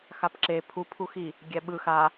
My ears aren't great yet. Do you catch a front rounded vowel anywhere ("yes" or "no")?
no